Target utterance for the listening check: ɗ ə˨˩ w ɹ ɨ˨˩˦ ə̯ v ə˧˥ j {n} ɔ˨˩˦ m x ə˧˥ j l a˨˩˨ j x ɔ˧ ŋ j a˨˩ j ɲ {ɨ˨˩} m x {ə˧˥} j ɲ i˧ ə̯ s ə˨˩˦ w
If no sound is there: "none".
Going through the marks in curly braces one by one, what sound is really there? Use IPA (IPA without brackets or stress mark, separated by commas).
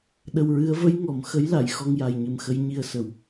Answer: ŋ, ɨ˨˩, ə˧˥